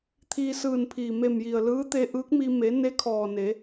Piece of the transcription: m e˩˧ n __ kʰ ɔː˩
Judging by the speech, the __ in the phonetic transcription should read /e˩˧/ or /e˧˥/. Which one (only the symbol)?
e˧˥